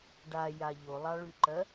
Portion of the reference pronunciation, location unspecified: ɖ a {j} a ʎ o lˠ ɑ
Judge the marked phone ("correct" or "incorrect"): correct